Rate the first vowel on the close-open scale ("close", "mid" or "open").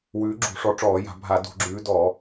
close